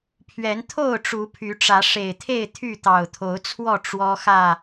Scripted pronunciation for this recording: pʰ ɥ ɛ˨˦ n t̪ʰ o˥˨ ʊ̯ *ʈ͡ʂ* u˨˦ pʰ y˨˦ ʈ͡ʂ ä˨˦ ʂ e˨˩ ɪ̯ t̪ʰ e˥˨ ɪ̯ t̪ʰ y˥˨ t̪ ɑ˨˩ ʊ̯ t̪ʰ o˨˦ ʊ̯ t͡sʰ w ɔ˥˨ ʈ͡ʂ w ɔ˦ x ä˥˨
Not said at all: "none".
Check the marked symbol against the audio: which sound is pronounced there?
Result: ʈ͡ʂ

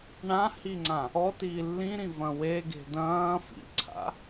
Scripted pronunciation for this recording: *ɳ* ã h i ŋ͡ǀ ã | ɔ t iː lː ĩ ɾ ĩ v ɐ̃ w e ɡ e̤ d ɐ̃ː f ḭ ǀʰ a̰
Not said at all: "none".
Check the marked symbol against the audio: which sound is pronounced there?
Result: ɳ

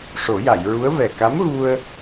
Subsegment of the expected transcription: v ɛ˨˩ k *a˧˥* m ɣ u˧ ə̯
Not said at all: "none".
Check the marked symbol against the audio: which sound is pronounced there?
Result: a˧˥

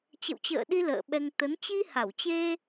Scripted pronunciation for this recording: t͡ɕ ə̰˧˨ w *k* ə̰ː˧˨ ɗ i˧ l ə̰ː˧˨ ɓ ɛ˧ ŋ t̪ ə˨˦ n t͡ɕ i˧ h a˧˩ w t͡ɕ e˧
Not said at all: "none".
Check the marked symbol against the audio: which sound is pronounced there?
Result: t͡ɕ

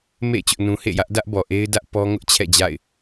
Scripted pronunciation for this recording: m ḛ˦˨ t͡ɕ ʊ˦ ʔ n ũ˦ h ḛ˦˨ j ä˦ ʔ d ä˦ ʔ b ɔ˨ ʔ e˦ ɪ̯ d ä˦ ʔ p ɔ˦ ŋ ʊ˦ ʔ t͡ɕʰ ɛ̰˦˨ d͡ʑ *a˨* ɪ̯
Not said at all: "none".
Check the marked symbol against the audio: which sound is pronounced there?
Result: a̰˦˨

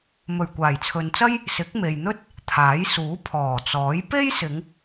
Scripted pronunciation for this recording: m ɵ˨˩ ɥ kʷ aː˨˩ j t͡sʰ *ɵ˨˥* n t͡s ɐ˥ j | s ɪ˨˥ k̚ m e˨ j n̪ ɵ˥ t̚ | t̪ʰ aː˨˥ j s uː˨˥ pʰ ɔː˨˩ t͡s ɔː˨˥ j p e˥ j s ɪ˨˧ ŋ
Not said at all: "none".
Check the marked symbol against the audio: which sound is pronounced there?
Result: ɵ˨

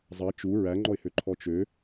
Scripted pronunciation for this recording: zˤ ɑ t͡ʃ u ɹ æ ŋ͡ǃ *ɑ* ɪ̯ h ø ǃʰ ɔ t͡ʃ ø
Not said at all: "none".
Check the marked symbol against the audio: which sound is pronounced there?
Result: ɔ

